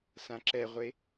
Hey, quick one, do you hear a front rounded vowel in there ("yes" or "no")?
no